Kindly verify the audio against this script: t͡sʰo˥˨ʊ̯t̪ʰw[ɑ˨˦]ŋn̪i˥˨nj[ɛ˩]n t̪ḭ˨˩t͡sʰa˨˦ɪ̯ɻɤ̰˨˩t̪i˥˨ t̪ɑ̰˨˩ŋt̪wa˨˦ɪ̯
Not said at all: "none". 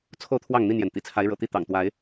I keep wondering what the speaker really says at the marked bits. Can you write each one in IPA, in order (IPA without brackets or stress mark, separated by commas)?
ɑ˥˨, ɛ˩